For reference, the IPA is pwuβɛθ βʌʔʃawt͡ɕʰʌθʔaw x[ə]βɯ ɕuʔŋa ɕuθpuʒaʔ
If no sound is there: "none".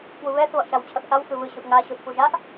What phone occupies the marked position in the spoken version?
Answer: ɯ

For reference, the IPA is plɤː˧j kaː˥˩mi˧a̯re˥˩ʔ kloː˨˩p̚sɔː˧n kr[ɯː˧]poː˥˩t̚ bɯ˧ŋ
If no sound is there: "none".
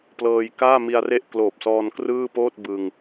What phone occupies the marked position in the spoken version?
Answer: ɯː˥˩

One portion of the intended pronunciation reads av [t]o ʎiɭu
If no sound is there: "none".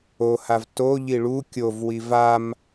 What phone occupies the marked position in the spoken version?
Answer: t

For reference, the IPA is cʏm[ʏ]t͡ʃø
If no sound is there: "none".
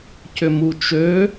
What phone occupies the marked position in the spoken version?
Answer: u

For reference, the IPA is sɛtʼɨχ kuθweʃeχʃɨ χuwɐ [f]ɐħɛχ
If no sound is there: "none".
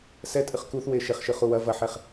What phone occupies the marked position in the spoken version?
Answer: v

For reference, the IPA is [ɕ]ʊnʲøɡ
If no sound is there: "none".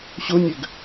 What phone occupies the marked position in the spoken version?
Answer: ɕ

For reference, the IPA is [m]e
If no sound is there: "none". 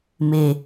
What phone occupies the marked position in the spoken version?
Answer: m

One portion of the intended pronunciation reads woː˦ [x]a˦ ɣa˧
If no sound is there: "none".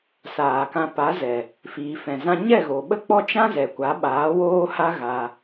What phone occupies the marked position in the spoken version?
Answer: h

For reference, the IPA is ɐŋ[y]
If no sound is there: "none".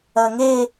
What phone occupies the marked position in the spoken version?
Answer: e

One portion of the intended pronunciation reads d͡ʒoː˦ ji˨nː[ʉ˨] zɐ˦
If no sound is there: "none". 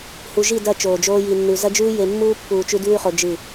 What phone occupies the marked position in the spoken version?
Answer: ʉ˨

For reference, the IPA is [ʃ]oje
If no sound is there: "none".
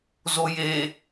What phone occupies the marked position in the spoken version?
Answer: z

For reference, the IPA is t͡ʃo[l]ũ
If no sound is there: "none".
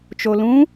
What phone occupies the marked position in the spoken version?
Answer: l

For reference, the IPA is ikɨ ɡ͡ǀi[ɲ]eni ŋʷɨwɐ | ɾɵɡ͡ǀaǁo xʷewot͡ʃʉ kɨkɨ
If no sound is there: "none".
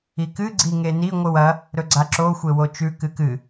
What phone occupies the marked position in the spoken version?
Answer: ŋ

